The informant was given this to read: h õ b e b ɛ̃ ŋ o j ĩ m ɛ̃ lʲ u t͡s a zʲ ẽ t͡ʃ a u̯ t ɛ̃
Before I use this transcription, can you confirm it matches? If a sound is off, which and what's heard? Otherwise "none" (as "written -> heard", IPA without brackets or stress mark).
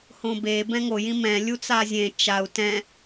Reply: none